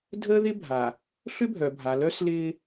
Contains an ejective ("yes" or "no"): no